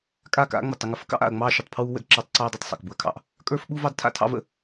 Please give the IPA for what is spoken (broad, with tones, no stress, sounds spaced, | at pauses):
kʼ a˦˨ k a̰˦ ŋ͡m ə˨ tˤ ə˦ ŋ ə˨ f ə˦ k ɑ̰˦ ʔ a̰˨ ɐ̯ ŋ͡m ɑː˦ ʃ u˨ tˤ pʰ w uː˦ w ə̰˦ d ǁ ɑː˦ tˤ ǀ ɑː˦ dˤ a˨ tˤ sˤ ɑ̰˨ k b u˨ ɐ̯ kʰ ɑ̰˦ ʔ | kʼ ə˞˦ f ɓ u˦ v ɑ˦ d tʰ a̰˦ tʰ ɑ̰˦ v ə̰˨